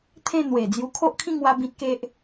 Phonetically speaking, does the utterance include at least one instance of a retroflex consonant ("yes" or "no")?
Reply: no